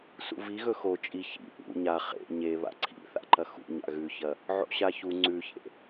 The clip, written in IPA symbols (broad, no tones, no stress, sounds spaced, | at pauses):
s ṵ v i ɣ ɵ x o t͡ʃʼ i ç ḭ ʔ ṵ ɲ a χ ḛ ɲ e β a̰ ǀʰ ḭ θ a̰ ǃ ɐ x ṵ ɲ a̰ ɣ ʉ ç ɐ | ʕ o̰ ɕ a ç u ŋ͡ǀ ʉ ç ḛ